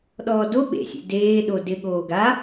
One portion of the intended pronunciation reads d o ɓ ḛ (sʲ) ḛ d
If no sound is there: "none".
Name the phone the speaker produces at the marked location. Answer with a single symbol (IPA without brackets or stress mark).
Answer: sʲ